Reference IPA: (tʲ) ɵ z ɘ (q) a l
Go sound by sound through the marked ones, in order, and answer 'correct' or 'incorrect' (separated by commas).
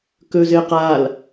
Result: incorrect, correct